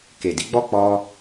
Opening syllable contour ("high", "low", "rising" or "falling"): low